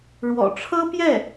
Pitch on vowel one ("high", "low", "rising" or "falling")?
low